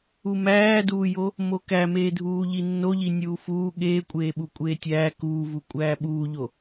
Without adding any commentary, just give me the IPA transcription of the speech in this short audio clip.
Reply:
umæːduːjo | mokæmeːdʱuː ʎinːoʎi nʲuːfuː ɠeːkʷʼeːɓu kʷʼeːtʲæː kuːvu kʷʼæːɓuːʎo

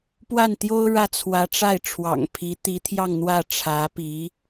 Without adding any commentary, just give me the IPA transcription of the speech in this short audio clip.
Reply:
pwa˥˩nt̪jo˥ʊ̯ ɻä˥˩t͡sʰwä˧˥ʈ͡ʂa˥˩ɪ̯ʈ͡ʂʰwɑ̰˨˩ŋ pʰi˧˥t̪i˧˥t̪ʰjɑ˥˧ŋn̪wä˥˩ ʈ͡ʂʰä˧˥pi˧˥

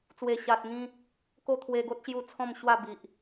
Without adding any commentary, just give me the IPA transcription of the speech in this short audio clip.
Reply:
t͡swe˨˩ɕa˨t̚ŋĩ˧ | ko˥˧t̪ʰwe˧ɡo˦t̚ɕju˧ t͡sʰɔ̃˥˧mɕwa˥˧bi˨ʔ

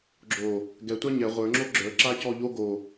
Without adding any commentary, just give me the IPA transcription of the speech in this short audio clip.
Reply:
ɡ͡ǁo | ɡɛtʷa ɲɛ ʁʷə˞ŋ͡ǁo ɡ͡ǁə˞ǁacɔ ʎo ɡo

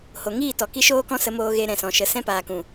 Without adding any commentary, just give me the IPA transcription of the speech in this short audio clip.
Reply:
ho˨ŋiː˦˨tɔ˨ ki˧ʃoː˧kɔ̃˧ sə˧moː˧ɣe˧ ɾɛ̃˨sɔ̃˨ʃə˨˦ sɛ̃˧paː˨kũ˨

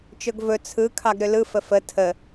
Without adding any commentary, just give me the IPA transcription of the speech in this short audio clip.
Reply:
t͡ʃɵɡvɵ t͡sʰɯ kʰɑɡɾʏlɯfə fə tʰə

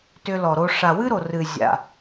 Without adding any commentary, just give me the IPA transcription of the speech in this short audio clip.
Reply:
tʏ˧lɔ˨ɾo˧ ʂa˨wɨ˦ɾo˨ rɨ˨ zʲa̰˨

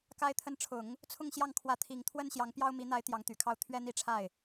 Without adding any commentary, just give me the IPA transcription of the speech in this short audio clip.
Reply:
ka˧˥ɪ̯t̪ʰə˧˥nʈ͡ʂʰʊ˨˩˦ŋ | t͡sʰʊ˥˧ŋɕjɑ˥˩ŋkʰwä˧˥t̪ʰi˨˩ŋ t̪ʰwə˥n ɕjɑ˧˥ŋpjɑ˥ʊ̯ mi˧˥n̪a˧˥ɪ̯ t̪jɑ˧˥ŋt̪y˨˩kʰɑ˥˩ʊ̯ t̪ʰɥɛ˥n̪i˥˧ʈ͡ʂʰa˥˩ɪ̯

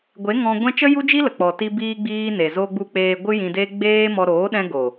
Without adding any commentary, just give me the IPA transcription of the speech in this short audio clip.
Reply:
ɡʷe˨˦ ŋɔ̃˧ɡʷɛ̃˦ t͡ʃə˦ju˦d͡ʒi˦lə˨ k͡pɔ˨ti˧biː˧ɡ͡biː˧ ne˨zo˧ɡ͡bu˧ k͡peː˧ ɡʷɨ˦jĩ˧deː˦ ɡ͡beː˦mɔ˧ ɾoː˨˦ɗɛ̃˧ɡo˨

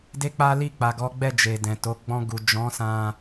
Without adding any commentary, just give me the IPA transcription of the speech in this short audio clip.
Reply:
de˦k͡pa˦ li˦˨k͡pa˨ɡɔ˨˦ɡ͡bɛ˦˨ d͡ʒe˨dɛ̃˨to˨˦ ɡ͡bɔ̃˧ɡu˨ d͡ʒɔ̃˨˦sã˧

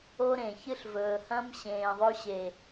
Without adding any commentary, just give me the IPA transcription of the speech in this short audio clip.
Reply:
o˦ɾẽ˨çɨ˦ɬ vɵː˨hɐ̃˦m ɕẽː˨ðˤɵ˦ɕe˨

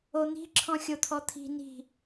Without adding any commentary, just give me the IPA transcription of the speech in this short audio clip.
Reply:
on̪i̤ǁʰɔ̃ xʲot̪ʰɔt̪ʰi̤ ni̤

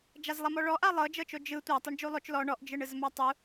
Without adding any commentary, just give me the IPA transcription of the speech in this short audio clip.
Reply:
d͡ʒazlˠamɔɭɔ ʔalˠɤd͡ʒɤt͡ʃo d͡ʒɯ tʷatˤuɳ d͡ʒulˠot͡ʃ lɔ ɳɔʔd͡ʒɯɳ ɯzmatˤu

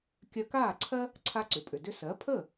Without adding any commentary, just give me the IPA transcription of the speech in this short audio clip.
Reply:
kʲœ˧kaː˥˩ǀʰɜ˥ | ǀʰa˧ǀʏ˩pʼʏ˩dʏ˧ sɜ˩˥pʰəː˥˩

